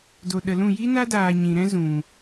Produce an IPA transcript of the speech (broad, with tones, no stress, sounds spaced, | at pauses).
d o˨ ɗ ə˨ l ũ˦˨ j i˦ n a˦ d aː˨ ɲ ĩ˨ ɾ ɛ̃˦ z ũ˨